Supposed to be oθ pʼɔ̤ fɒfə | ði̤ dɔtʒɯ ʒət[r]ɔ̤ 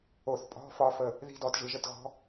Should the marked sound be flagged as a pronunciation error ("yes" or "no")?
yes